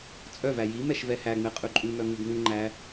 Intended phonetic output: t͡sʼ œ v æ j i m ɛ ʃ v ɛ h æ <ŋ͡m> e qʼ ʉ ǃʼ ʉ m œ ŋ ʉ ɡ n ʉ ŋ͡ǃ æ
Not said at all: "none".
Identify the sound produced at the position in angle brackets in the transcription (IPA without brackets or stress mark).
ŋ͡m